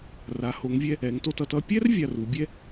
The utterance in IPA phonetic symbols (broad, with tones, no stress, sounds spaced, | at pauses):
r a˩˧ h o˩˧ ŋ vʲ ɛ˧ | ɛ˩˧ ŋ t o˧ t ʌ˧ t ʌ˥˧ pʲ ɛ˥ r vʲ a˧ r u˩˧ bʲ ɛ˥